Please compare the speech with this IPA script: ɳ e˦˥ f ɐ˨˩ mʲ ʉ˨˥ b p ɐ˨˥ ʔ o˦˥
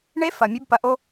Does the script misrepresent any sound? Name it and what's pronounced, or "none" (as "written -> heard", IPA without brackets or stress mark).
none